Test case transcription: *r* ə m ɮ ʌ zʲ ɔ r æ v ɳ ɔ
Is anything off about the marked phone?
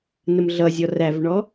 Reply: yes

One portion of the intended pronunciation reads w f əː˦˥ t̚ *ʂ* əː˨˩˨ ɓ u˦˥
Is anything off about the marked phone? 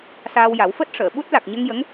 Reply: no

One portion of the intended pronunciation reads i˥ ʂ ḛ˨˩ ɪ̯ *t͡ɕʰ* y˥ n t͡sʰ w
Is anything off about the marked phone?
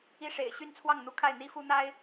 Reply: yes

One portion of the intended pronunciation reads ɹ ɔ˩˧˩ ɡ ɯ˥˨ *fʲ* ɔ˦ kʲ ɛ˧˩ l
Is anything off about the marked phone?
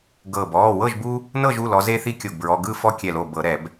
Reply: yes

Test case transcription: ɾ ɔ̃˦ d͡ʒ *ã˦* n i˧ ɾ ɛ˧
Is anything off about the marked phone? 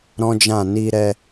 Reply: yes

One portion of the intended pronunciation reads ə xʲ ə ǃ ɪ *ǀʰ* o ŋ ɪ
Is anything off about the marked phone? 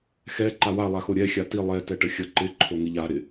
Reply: yes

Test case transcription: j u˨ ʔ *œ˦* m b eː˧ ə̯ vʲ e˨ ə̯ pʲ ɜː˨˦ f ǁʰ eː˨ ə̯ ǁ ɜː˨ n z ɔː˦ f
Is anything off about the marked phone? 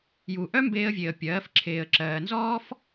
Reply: no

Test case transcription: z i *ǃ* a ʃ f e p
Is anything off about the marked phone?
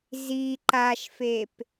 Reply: no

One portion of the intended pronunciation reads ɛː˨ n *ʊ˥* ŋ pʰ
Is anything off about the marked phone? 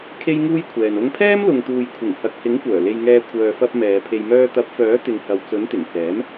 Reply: yes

